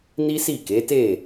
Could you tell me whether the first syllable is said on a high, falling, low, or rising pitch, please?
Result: high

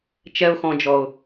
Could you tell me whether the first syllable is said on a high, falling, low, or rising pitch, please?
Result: low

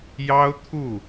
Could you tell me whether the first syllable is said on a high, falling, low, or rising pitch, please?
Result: high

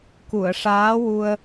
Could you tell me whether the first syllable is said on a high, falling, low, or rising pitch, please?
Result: low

